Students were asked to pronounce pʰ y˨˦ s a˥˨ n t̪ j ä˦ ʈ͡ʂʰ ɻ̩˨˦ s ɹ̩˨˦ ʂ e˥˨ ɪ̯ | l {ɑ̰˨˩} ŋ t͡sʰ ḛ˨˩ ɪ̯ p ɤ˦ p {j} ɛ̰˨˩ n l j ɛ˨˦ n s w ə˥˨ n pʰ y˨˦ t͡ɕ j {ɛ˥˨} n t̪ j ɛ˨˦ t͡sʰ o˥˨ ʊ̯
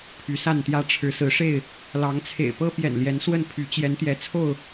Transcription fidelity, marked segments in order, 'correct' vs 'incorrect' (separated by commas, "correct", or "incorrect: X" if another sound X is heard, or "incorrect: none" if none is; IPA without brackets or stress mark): incorrect: ɑ˨˦, correct, incorrect: ɛ˨˦